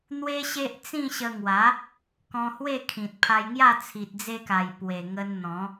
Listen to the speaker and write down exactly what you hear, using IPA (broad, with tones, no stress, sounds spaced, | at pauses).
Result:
n̪ w e˦ ɕ e˦ ʔ t͡s ĩ˥˧ ɕ ə˧ ŋ w a˨˦ | k ɔ̃˧ h w e˥˧ kʰ ĩ˨ t̚ pʰ a˧ j ŋ j a˥˧ t͡sʰ i˨ t̚ d͡z e˧ k a˨˩ j p w e˨˩ ŋ ə˧ n n̪ ɔ̃˨˦